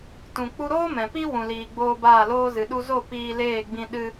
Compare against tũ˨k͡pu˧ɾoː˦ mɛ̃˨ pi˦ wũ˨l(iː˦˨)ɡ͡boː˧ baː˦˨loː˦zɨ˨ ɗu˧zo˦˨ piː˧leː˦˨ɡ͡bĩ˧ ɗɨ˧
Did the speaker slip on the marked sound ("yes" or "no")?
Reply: yes